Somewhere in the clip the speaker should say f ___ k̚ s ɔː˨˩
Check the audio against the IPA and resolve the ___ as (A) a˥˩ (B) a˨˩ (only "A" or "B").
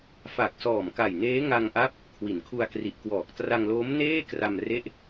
B